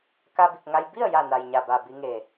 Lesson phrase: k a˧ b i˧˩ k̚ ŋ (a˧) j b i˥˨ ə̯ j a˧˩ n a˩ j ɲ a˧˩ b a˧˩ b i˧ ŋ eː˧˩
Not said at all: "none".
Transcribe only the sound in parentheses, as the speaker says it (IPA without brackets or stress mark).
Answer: a˧